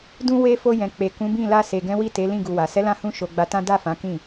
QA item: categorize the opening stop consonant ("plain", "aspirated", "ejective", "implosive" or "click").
plain